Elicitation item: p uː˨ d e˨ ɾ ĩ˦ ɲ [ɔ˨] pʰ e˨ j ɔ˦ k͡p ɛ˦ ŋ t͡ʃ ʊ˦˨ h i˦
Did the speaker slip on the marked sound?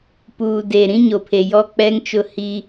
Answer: yes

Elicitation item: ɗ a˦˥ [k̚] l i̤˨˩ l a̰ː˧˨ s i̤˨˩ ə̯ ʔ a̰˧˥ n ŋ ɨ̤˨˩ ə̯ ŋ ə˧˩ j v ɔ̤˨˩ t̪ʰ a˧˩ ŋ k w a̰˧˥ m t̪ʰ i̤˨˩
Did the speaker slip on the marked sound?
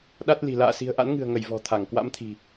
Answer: yes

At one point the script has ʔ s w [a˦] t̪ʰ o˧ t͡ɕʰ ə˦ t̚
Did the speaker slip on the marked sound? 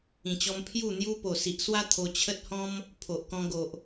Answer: no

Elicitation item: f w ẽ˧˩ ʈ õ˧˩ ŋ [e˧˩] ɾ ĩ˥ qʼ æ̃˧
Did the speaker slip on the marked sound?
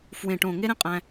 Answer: yes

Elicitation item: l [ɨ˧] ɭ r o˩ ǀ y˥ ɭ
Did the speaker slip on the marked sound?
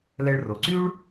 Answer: yes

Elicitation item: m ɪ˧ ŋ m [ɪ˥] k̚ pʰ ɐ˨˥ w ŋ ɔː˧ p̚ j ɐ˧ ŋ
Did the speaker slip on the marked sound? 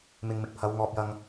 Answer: yes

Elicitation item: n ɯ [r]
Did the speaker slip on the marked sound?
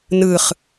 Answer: yes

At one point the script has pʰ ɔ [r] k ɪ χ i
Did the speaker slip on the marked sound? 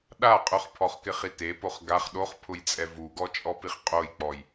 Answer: yes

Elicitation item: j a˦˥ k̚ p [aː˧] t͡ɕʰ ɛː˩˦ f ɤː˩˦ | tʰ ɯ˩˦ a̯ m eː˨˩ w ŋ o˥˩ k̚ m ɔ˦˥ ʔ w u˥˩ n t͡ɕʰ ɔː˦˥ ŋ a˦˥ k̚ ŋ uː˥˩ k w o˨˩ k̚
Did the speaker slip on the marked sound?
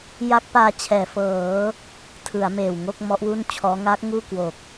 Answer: no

